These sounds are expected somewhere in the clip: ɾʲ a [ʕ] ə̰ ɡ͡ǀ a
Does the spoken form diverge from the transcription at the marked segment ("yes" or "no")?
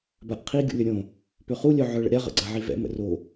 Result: yes